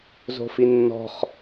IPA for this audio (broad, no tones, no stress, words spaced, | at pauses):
zo̤finːɔ̤χ